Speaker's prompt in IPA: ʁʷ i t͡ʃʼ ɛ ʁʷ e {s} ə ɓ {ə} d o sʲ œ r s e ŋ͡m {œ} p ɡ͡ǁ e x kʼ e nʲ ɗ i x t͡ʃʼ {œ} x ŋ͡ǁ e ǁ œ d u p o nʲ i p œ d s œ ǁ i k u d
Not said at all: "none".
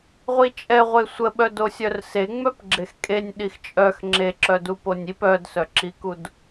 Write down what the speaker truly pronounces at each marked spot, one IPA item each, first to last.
sʷ, œ, œ, œ

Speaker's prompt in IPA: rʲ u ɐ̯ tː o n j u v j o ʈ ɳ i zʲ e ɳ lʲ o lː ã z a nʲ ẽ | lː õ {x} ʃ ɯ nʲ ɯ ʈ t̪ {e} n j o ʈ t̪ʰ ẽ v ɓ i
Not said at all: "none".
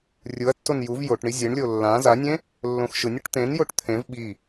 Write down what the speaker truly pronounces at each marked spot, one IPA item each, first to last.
x, ẽ

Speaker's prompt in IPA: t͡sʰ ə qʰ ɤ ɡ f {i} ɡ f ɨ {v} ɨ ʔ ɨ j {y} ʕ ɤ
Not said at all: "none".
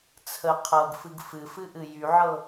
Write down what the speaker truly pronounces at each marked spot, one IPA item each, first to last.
ɨ, f, y

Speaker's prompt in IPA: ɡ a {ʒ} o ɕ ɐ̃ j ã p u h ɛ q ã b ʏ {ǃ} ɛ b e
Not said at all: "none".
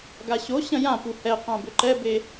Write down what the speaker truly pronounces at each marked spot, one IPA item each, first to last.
ɕ, ǃ

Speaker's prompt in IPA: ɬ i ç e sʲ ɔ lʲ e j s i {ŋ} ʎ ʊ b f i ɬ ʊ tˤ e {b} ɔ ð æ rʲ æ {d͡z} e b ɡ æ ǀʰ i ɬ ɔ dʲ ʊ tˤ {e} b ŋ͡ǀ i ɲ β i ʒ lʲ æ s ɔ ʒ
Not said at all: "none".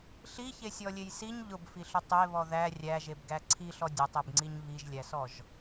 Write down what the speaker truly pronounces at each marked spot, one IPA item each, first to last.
ɲ, β, ʒ, e

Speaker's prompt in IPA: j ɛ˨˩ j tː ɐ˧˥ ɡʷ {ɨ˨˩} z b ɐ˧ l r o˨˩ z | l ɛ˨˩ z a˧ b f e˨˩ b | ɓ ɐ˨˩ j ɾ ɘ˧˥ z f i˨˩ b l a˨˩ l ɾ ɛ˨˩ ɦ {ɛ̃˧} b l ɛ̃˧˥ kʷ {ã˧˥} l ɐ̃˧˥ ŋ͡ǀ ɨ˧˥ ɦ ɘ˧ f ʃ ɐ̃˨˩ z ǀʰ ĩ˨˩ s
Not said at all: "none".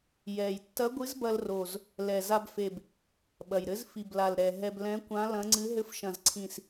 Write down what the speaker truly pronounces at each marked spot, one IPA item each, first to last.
ɨ˧˥, ɛ˧, ã˧˥

